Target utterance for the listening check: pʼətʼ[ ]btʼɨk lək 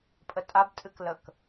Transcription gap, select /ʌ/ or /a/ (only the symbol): a